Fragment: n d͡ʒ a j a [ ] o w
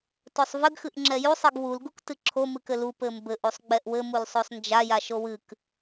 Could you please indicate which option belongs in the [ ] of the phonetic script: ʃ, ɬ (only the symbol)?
ʃ